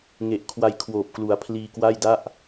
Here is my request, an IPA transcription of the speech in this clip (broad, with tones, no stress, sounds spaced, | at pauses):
ŋ e˨˩ ʔ kʰ w a˧ j kʰ w oː˨˩ p̚ k l u˩˦ a̯ pʰ l iː˧ k w a˥˩ j d a˥˩ ʔ